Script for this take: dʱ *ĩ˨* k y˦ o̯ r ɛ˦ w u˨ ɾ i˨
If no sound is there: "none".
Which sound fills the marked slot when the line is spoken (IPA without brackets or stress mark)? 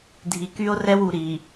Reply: i˨